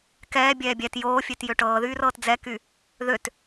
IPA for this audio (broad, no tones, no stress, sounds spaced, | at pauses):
k ɛː bʲ ɛː bʲ ɛ t j oː fʲ ø t j ø ʈ ɤː ð yː r ɤː t d͡z ɛ k y | ð ø t